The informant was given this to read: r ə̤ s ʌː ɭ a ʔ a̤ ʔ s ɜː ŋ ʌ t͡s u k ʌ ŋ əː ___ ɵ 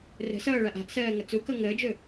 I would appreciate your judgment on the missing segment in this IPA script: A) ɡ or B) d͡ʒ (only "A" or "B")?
B